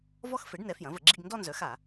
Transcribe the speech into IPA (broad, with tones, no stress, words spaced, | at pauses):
vɔ˥˧x fe˩˥ɖnɛ˩˥ fjɐ̃˩˥və˧˩˧ɡ͡ǁi˥˧ɡ ndɔ˥˧nzœ˩˥xa˧˩˧